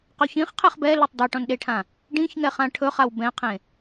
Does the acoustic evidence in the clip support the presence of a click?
no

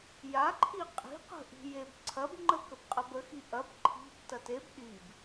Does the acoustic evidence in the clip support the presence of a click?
yes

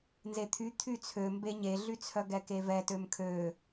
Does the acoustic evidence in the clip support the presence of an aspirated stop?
yes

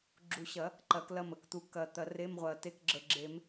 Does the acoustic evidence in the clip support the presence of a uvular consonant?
yes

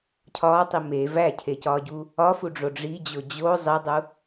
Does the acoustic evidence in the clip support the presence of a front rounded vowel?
no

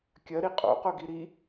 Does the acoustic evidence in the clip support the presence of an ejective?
yes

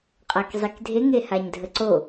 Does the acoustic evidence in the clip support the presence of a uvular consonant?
yes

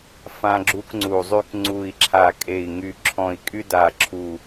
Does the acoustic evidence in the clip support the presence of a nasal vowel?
yes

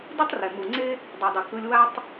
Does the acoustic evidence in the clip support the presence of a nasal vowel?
no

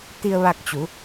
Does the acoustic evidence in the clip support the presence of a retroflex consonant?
no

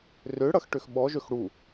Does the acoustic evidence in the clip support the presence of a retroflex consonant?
yes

